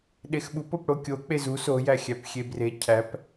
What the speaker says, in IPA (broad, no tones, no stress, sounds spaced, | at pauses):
ɗ e x ɓ u p o p ɽ o kʲ o k͡p e z u s o j æ xʲ æ p xʲ e b r e cʰ æ p